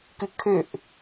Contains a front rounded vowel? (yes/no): yes